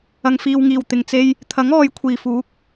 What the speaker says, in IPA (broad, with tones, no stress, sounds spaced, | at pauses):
ɐ˨˩ ŋ f iː˨ w ŋ iː˨˩ w t̪ ɪ˨˩ ŋ t͡s e˧ j | t̪ʰ ɐ˨˥ ŋ ɔː˨ j kʷʰ iː˨˩ f uː˨˥ k̚